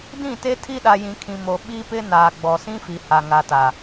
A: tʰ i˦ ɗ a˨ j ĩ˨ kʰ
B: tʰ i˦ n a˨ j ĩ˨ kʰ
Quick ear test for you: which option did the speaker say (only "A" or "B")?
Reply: A